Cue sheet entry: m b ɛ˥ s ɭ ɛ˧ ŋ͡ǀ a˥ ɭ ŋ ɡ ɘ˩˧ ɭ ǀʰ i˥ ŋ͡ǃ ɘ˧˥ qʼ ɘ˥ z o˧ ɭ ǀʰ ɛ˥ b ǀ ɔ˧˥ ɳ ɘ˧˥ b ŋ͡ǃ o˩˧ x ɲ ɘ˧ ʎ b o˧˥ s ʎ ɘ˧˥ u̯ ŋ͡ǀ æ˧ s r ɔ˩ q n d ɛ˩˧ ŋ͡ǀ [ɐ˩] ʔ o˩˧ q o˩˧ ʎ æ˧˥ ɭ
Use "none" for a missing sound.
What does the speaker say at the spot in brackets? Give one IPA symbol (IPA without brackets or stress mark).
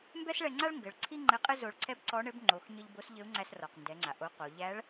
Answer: a˩